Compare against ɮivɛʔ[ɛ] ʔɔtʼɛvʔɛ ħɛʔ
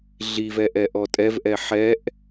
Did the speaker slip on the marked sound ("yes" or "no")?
no